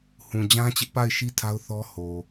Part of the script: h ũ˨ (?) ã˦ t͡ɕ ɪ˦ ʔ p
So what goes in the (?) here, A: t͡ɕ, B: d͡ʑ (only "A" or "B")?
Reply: B